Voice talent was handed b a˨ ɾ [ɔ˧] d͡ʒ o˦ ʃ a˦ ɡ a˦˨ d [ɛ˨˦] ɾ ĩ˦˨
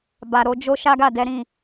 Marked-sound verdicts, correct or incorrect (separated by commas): incorrect, correct